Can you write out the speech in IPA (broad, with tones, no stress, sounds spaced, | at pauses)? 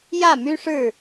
j ä˥˨ m y˦ ʂ ɻ̩˥˨